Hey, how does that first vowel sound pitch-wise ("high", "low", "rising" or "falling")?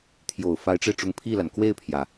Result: low